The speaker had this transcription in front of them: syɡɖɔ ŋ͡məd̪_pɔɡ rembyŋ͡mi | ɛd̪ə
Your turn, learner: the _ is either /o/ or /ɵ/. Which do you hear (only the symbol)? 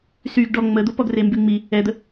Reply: o